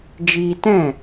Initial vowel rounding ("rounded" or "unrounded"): unrounded